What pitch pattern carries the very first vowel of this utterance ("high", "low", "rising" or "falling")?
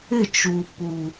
falling